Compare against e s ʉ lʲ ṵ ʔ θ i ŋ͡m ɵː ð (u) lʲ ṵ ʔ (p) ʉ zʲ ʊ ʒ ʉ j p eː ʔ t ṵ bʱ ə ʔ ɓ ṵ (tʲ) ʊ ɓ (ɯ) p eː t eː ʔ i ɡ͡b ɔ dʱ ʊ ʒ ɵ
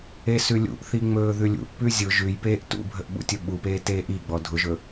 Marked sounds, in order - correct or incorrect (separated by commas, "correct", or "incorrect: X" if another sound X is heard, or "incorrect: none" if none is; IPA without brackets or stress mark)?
incorrect: ʉ, correct, correct, incorrect: u